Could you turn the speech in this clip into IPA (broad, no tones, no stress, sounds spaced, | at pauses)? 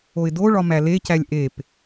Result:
o ɪ̯ d o ɭ ɒ m æ l e c æ lʲ ʔ e p